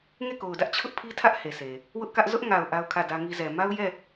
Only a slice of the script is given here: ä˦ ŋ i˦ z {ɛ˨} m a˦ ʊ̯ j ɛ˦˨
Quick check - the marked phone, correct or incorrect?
correct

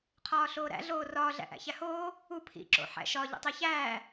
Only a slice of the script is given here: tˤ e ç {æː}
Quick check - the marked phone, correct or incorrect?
correct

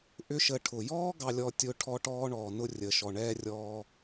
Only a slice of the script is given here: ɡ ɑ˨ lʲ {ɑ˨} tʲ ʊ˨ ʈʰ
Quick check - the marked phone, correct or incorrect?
incorrect: ɔ˨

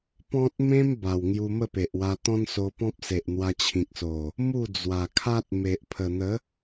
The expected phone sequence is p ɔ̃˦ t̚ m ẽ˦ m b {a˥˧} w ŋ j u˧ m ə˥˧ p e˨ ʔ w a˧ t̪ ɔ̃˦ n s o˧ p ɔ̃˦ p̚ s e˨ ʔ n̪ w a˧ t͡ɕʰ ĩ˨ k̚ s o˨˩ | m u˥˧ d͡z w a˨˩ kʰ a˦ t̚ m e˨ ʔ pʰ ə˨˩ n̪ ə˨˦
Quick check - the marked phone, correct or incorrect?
incorrect: a˨˩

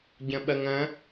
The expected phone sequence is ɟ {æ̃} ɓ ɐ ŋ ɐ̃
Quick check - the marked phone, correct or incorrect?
incorrect: ɐ̃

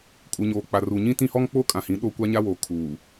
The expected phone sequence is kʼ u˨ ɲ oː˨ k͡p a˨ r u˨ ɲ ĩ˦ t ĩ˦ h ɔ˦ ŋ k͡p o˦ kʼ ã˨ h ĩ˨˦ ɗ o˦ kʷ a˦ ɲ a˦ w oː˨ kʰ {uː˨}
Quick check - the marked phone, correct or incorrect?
correct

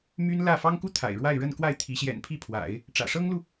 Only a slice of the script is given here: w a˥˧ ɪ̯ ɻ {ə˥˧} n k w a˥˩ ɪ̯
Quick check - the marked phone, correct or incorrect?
correct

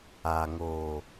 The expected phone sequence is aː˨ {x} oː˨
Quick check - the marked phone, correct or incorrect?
incorrect: ŋ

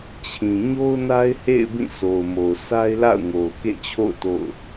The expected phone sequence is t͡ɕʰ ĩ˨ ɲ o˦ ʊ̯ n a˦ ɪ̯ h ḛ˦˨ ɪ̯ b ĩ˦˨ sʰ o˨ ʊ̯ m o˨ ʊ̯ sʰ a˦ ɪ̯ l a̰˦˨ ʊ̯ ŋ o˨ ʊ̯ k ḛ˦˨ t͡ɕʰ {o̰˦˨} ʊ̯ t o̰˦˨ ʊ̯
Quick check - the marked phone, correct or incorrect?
correct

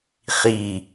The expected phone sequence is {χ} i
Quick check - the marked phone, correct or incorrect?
correct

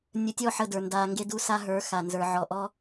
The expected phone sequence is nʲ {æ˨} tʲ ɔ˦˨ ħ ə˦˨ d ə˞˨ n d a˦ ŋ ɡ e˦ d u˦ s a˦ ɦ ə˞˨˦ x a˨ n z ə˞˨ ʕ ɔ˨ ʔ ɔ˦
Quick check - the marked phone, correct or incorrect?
incorrect: ə˨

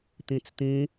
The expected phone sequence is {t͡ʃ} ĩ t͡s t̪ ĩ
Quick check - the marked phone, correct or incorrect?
incorrect: t̪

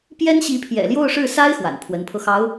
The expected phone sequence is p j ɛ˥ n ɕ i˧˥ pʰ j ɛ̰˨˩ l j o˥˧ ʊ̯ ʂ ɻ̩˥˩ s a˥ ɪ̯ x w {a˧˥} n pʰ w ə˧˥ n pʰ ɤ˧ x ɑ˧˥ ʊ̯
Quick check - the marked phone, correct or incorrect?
incorrect: a̰˨˩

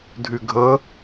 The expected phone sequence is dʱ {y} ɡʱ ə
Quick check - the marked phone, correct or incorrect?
correct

